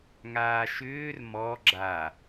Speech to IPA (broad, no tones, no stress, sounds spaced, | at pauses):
ŋ aː ʃ ʏː r m ɔ ɡ͡ǁ a